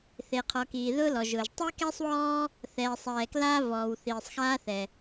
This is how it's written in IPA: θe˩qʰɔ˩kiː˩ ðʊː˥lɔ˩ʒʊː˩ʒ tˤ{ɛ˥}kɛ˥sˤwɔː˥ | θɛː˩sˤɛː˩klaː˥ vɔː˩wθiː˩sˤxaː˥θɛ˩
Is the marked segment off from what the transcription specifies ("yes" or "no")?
yes